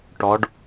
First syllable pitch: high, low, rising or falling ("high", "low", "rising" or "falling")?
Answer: rising